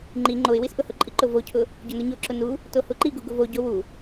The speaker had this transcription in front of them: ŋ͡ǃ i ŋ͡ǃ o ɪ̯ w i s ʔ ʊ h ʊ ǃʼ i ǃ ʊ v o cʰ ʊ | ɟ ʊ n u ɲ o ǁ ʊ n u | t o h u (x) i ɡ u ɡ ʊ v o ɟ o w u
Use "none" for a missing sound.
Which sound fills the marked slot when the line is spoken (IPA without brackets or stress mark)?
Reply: ǃ